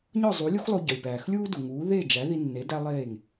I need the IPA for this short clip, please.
ɲ ɒ˥˩ zˤ u˩˥ lʲ u˥ x lˠ o˧ ɟ ɒ˩ lʲ p æː˩ x lʲ uː˥ d u˩ ŋ uː˩˥ ð e˥˩ d͡ʒ æ˩˥ ð i˧ nː e˩˥ d æ˥ lˠ eː˥˩ ŋ

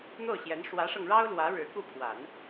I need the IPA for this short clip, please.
n̪ o˥˩ ʊ̯ ɕ j ɛ˧˥ n ʂ w ä˧˥ ʂ ɤ˧ ŋ ɻ ɑ˥ ʊ̯ l w ä˧˥ ɻ ɻ̩˧˥ k u˥˩ pʰ w a˨˩˦ n

